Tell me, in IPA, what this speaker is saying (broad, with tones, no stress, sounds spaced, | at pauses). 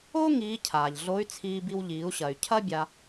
o˥ ŋ iː˧˥ cʰ aː˩ ʎ ɮ o˧˥ y̯ t͡sʰ iː˧ b i˧ w ʎ iː˩˧ u̯ ɕ ɐ˩ y̯ cʰ ɐ˥ bʲ a˧